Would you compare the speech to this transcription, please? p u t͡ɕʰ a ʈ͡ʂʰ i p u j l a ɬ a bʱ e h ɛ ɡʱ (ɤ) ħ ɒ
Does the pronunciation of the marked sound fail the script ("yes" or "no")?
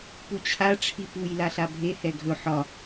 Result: yes